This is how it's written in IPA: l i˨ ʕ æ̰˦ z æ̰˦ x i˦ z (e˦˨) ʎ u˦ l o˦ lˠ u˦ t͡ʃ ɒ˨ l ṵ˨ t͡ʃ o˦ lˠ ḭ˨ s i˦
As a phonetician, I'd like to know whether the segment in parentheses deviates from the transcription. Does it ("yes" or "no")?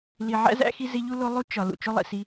yes